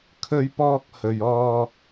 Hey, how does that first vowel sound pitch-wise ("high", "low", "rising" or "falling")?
high